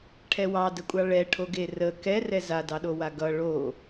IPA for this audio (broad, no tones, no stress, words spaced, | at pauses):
ʈʰɛwɑdəkʷʼɑ ɭɛʈʰoɡe rə kɛrɛ zadɑɗowa ɡʌ ɭo